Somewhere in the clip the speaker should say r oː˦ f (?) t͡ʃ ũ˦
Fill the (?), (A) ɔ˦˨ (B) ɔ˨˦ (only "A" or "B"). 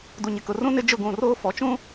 B